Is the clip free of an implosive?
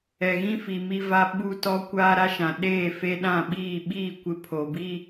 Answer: no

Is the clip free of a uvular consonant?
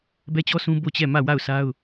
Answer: yes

